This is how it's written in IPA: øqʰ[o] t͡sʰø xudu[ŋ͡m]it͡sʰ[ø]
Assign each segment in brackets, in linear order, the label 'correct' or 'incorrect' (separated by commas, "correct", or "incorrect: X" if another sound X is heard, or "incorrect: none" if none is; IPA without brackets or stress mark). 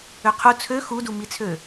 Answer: incorrect: u, incorrect: m, correct